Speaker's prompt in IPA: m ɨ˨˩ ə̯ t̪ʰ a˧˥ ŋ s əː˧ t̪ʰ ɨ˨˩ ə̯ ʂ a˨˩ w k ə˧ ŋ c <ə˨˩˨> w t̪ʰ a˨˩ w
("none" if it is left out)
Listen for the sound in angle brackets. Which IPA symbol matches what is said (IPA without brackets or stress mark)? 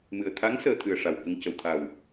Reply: ə˨˩˨